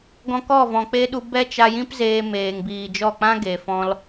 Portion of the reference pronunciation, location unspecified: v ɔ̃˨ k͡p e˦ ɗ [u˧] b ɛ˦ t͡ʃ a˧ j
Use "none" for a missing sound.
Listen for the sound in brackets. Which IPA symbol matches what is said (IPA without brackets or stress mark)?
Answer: u˧